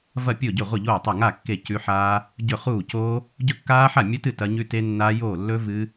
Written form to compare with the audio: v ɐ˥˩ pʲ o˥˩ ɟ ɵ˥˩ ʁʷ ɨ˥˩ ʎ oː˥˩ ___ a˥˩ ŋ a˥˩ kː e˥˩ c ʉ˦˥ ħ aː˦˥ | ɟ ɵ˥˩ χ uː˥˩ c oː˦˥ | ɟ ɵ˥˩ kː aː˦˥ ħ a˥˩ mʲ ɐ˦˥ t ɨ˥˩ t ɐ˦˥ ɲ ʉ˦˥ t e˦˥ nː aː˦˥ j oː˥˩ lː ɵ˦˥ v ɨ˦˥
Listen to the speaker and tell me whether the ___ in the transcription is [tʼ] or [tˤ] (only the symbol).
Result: tˤ